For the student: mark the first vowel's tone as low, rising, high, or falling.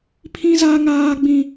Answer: high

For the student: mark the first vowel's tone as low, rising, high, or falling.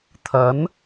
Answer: rising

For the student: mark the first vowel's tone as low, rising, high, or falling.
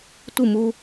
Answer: falling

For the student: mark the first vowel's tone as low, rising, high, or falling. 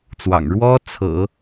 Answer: low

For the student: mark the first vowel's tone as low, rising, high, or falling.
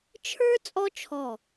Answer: high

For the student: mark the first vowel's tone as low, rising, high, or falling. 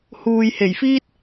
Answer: low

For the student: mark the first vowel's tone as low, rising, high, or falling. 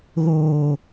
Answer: low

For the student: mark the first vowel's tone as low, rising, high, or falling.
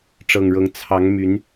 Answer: low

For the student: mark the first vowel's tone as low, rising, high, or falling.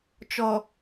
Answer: low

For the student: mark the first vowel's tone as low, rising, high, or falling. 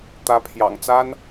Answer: rising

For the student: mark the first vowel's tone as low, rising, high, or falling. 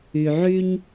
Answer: low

